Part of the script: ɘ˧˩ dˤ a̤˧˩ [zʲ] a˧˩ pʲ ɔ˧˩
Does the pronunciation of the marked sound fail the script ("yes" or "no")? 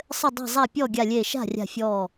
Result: yes